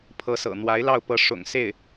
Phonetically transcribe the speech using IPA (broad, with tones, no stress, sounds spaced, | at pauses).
pʰ ɤ˧˥ s ɤ̰˨˩ n̪ w a˧˥ ɪ̯ l ɑ˥˩ ʊ̯ p ɤ˥ ʂ ʊ̰˨˩ ŋ s e˥˩ ɪ̯